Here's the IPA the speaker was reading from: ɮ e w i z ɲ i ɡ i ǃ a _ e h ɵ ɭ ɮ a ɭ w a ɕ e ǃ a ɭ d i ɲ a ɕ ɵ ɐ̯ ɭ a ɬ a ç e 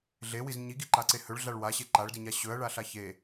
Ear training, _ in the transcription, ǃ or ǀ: ǀ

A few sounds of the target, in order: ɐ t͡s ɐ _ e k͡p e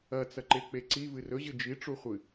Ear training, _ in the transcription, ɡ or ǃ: ǃ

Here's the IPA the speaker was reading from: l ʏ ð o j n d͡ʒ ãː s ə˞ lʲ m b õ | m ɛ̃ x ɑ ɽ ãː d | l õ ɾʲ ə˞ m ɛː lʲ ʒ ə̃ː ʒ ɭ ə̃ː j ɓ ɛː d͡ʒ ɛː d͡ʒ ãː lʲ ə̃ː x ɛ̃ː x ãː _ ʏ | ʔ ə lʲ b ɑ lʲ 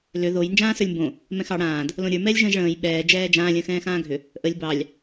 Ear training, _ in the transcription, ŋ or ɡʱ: ɡʱ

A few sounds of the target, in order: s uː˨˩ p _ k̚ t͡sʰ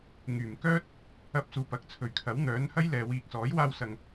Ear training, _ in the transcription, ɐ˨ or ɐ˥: ɐ˨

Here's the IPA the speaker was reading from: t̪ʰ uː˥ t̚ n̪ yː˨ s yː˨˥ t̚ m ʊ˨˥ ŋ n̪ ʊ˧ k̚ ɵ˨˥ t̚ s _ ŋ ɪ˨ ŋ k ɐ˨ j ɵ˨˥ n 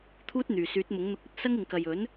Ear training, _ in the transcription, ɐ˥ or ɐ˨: ɐ˥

